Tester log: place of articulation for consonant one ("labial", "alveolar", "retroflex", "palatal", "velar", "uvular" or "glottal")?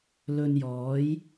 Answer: alveolar